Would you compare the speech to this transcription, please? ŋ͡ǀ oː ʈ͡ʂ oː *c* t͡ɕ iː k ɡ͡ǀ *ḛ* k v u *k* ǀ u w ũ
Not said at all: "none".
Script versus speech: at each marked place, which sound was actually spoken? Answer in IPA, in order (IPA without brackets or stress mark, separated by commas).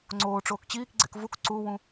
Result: k, ḛ, k